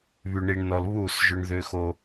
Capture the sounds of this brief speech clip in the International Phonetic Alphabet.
β y˨ ɳ i˨ ɳ n ɔ˨ l β u˦˨ s ʒ ʏ˦ ɳ ð ʏ˦ x o˦

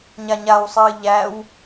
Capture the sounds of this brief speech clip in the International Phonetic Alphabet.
ɲ a ɲ a w sˤ ɨː ʎ æ w

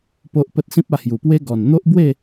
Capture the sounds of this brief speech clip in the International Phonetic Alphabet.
p o˦ ʔ p ə˦ t̚ s ĩ˦ p̚ a˧ h j u˨˩ p w e˦ ɡ ɔ˨˩ n n̪ o˦ ʔ b w e˥˧

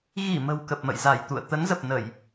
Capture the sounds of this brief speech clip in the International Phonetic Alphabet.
ɣ i˧˩ m ə̤˨˩ w k ə˨˩ p̚ m ə̰˧˨ j z a˧˩ j t̪ ṵ˧˨ ə̯ t̪ ə˨˦ n z ə˨˩ p̚ n ə˧˩˨ j

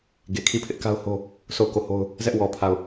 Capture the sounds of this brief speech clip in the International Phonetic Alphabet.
ɡ e˨ kʰ i˦˨ pʰ ɪ˦ ʔ k a˦ ʊ̯ h o˦ | sʰ o˦˨ ʊ̯ k o˦˨ h o˦ ʊ̯ | z ɛ˦ ʔ w ɔ˨ pʰ a˦˨ ʊ̯

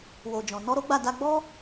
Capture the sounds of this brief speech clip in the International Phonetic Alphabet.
w o˨ d͡ʒ ɔ̃˨ n ɔ˧ ɾ o˦ ɡ͡b a˦˨ d a˧ ɡ͡b ɔ˦

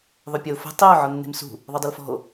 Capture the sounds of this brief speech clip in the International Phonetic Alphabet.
ðˤ ɵ pʲ ɵ o̯ f ɛ̤ tˤ i o̯ ʕ ɔ nː e̤ m s ṳ | ðˤ ɵ dˤ ɵ l f ɔ̤ o̯

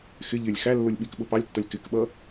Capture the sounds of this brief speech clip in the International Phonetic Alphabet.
x ɪ ʎ ɪ lʲ x æ lː ʊ lʲ ɓ i k ɓ ʊ p ɑ lʲ tː ʌ lʲ k ɪ k ɓ ʌ

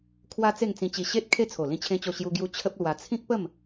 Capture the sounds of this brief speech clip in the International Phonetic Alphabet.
kʰ w a˦ t͡s e˥˧ ŋ t͡s ĩ˧ t͡ɕ i˧ ɕ e˦ t̚ kʰ e˥˧ t͡sʰ o˨˩ l ĩ˦ t͡ɕʰ ẽ˦ t͡ɕ o˥˧ ɕ j u˧ ɡ j u˧ t͡ɕʰ ə˦ p̚ l w a˧ t͡sʰ ĩ˦ k̚ p ə˥˧ m

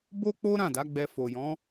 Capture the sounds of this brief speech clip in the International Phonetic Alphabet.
b o˦ k͡p o˦ ɾ ã˦˨ d a˨˦ ɡ͡b ɛ˧ f o˨ j ɔ̃˨˦

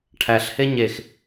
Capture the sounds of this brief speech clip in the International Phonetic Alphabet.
ʈʰ æ ɬ h e ɲ e x

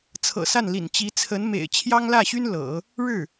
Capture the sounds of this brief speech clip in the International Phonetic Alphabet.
t͡sʰ ɤ̰˨˩ s a˥˩ n l ḭ˨˩ n t͡ɕ i˧˥ t͡sʰ ə˧˥ n m ḛ˨˩ ɪ̯ t͡ɕʰ j ɑ˥ ŋ l ä˥˩ ɕ y˥ n l ɤ̰˨˩˦ | ɻ ɻ̩˥˩

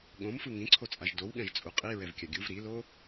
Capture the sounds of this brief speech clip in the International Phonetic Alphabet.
ɠ õ m f ɯ ŋ ĩ ǀʰ o t͡sʼ a ʒ d o w ɠ ɛ̃ ʒ t͡sʼ u qʼ i ɹ ɛ v kʲ a ɡʲ u v ɾ i l o

